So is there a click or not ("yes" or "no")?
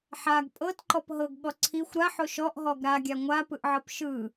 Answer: yes